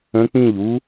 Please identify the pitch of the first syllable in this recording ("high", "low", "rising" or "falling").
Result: rising